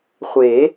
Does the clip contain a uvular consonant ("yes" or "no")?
yes